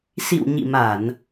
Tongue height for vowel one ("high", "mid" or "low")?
high